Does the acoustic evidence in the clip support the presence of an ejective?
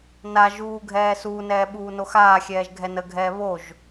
no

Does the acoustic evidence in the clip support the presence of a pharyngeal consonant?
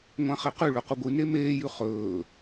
no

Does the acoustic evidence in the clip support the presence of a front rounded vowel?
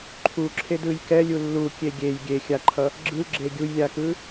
no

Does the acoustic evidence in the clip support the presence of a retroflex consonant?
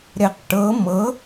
yes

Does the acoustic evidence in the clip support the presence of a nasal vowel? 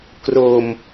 no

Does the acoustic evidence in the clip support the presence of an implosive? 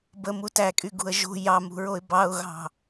no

